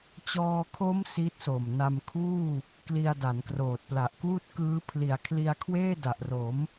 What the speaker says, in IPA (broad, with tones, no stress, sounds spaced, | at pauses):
t͡ɕ ɔː˧ kʰ o˦˥ m s i˦˥ t̚ s o˨˩ m n a˧ m kʰ uː˥˩ | k l i˧ a̯ d a˩˦ n k r oː˨˩ t̚ p l a˨˩ ʔ k uː˥˩ t̚ k ɯː˦˥ pʰ l i˨˩ a̯ kʰ l i˧ a̯ kʰ w eː˥˩ d a˨˩ ʔ r o˩˦ m